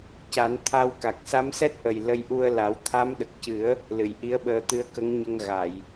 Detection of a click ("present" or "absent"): absent